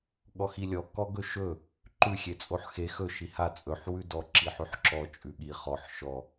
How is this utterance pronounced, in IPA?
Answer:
ɠɔxilʲɔ kɔɡɵʃɵ | ǃʉxʲet͡sʼoħ xe xɵ ʃiha t͡sʼɵħ wʉdɔ ǁiħʉħǁɔ t͡ʃʼʉɠi χɔħ ʃɔ

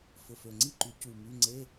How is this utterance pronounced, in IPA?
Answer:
fʊ˨˩fø˨˩ŋ͡ǀi˥˨ǃy˨˩˦ cu˨˩ my˧˥˧ ŋ͡ǀe˧˥˧

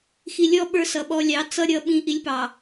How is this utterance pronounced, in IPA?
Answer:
xi˨lʲɔ˦ ɓə˞˦sʌ˨ɓɔ˦ lʲɑ˨˦t͡sʌ˦ ɾʲʌ˦ ɓĩ˦ʔi˦lʲpɑ˨

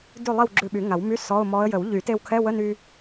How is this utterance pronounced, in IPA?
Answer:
dʉ˥˨lˠi˥˨w ɡ͡ǁʉ˧ɓy˨˩˦ŋa˨˩˦wmy˧˥˧ sɔ˧˥˧ʊ̯mɔ˧˥ə̯ jə˨˩˦wʎy˨˩˦ te˧wkʰɛ˧˥˧wə˧˥˧ny˧

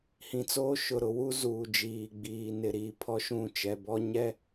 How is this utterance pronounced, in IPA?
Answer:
hĩ˨t͡soː˦ ʃʊ˨ ɾʊ˨wu˦ zuː˨d͡ʒiː˨ɡ͡biː˨ nɪ˨ɾiː˨ pʰɔ˦ʃũ˦˨t͡ʃɛ˨ bɔ˦ɲɛ˦

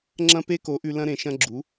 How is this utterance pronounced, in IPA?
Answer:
ŋ͡ǁɐ̃˧ pe˦ko˨˦ʔʉ˧ lɐ̃˧ɾẽ˨ʃɐ̃˧ ɡ͡ǁu˨˦

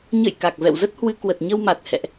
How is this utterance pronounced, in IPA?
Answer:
ɲə̰˧˨j ka˨˩k̚vɛ̰˧˨wzə˦˥t̚hwɨ˧ kwə˨˩t̚ɲə˧wma˨˩t̚ hɛ̰˧˨ʔ

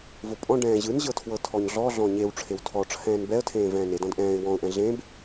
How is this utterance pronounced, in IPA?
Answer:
vopʼɔ̃ ɖɛ̃ːʑɯnʑɤtʰwɤ tʰɔɲɮɔ ɮɔ̃ɲew ʈ͡ʂʰewtʰɔʈ͡ʂʰɛ̃ːn bɛə̯tʰẽː vɛ̃ːnedɔ̃d ʔɛ̃ːɪ̯ wɔ̃ʊ̯ʔɛ̃ ɮẽb

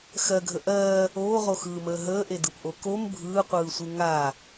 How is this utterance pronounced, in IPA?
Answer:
xɜɡʱə ʔɜː | oːʁoxɯːməː ɦəːʔedɯpʔo kom bʱɯːqʷɯːsʷɯ ŋa

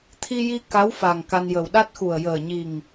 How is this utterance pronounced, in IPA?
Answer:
t̪ʰi˧ji˧ ka˧˥w fa˨˩ŋka˧njə˨˩w ɗa˦˥t̚xu˨˩ə̯ jəː˨˩ɲi˨˩ŋ

